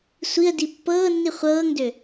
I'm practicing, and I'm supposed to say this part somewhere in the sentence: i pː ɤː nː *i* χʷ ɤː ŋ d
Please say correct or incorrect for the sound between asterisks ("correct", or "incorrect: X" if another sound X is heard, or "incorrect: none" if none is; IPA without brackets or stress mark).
correct